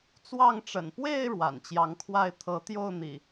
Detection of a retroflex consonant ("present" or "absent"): present